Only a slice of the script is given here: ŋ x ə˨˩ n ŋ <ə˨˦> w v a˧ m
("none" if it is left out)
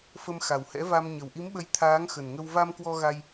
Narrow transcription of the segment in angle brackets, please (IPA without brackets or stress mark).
ə˧